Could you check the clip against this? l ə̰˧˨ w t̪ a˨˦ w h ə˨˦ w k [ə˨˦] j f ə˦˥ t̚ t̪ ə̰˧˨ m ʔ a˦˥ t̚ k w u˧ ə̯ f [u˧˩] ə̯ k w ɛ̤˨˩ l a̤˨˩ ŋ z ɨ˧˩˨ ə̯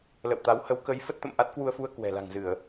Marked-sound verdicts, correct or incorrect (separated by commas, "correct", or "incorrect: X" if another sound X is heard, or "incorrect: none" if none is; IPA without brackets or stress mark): correct, incorrect: u˧